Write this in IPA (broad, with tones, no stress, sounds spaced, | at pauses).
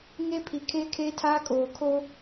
ŋ e˦ pʰ i˨ kʰ eː˦ kʰ eː˦ tʰ aː˦ kʼ oː˨ kʰ o˦